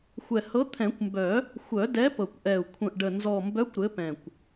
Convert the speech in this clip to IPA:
xʷɛ˨˩hɤ˨˥t̪ʰɛ̃˨˩˦kʷmbœ˨˩˦ | xʷœ˨˩˦dɛ˨˥ pɤ˨˩kʷʔɛ˨˩u̯ kʷʰə̃˨˩ʔɖə˨˩ nzɔ˨˩mbœ˨˥kʷ ɾɘ˨˥pɛ̃˨˩kʷ

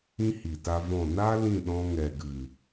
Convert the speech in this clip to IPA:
ĩ˦hi˨ta˧vɔ̃˦˨ na˦ lĩ˦˨ɗɔ̃˧ ŋɛ˨ɡɨ˨

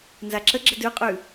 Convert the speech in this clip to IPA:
nzaǁəɡ͡ǁə dʉqʼʉ

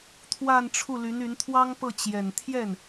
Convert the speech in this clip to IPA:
t̪ʰwa˥˧nʈ͡ʂʰu˥˩ ly˧˥ny˧˥nt̪ʰwɑ˥ŋ pɤ˥˩ t͡ɕjɛ˨˩nt̪ʰjɛ˥˩n

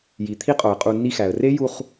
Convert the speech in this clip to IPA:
ji˨t̪ʰi˦qʼo˨ə̯qʼu˧ nːi˧xæ˨ə̯re˦ ju˧χ

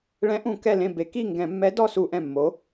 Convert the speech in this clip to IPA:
ɭɛ̃˧˥ʔũ˧˩˧ kɛ˥˨lẽ˥˨ be˩˧ki˥˨ ŋɡɛ̃˧˩˧mːɛ˧˥ dɔ˥˨ su˧˩˧ʔɛ̃˨˩mːo˩˧

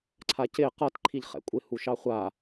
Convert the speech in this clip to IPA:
ǀʰacɪ qʌt ǃʰiʎχɛ̰kʷʼɪ huʃɑχʷa

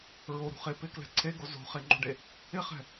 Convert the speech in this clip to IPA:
ɹoɾṳχe pɪklɛ̤ ǀʰeɡo zo̤χeŋ͡ǃo̤ɖe | ɪχɛ̤

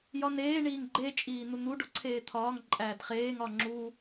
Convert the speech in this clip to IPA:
jɒneː ɳiːŋɡ͡ǃe t͡ʃʼiːn̪un̪u ɖoǀʰeːt̪ʰɒːŋ ǃʼæːdχeːŋ ɒŋ͡ǁu

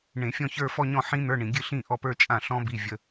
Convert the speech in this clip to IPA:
ɳẽ˧˩˧fʲɔ̃˥˧ çə˞˥˧ fɔ˥˧ɲɔ̃˥˩ ħĩ˦˥n̪ə˞˧˥˧ɳĩ˧˩˧ɡʲɨ˥˩ ɬĩ˥˩ʔɔ˥˩pə˞˥˧ t͡ʃʼã˥˩ɬɔ̃˦˥ bi˧˥˧vʲə˦˥

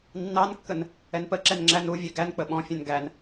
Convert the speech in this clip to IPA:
nːɑnkːən | ɛnpəǁɛn ŋ͡ǁænuvʲɛ ɡænk͡pə ɓɔ̃fʲɛ̃n ɡæn

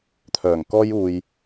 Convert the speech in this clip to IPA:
t̪ʰœː˨˩ŋkɔː˥j uː˧j

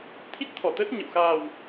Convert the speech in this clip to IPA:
t̪ʰi˦˥t̚t̪ʰɔ˧˩t̪əː˦˥t̚ɲə̰˧˨w xaː˨˩w

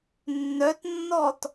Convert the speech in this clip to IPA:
nːœtnːɔt

